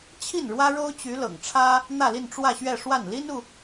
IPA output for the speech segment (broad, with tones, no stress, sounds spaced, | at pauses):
t͡ɕʰ i˥˩ n ɻ w ä˥ ɻ o˥ ʊ̯ t͡ɕ y˧˥ l ɤ̰˨˩ ŋ ʈ͡ʂʰ ä˥ | n̪ ä˥˧ l i˥˧ n ʈ͡ʂ w ä˥˧ ɕ ɥ ɛ˥˧ ʂ w a˥˩ n l i˥ n u˨